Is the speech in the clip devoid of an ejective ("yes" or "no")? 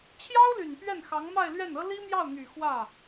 yes